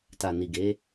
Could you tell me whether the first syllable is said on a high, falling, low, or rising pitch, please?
low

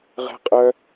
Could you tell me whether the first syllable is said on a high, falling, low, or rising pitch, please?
high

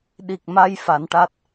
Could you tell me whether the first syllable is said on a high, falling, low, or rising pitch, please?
low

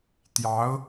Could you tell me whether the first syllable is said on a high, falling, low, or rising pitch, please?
rising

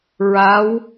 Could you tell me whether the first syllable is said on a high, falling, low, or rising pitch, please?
rising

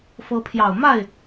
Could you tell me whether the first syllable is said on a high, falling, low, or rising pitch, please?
rising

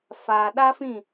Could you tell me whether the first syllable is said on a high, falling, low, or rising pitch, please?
low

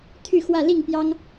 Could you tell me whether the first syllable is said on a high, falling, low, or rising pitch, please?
falling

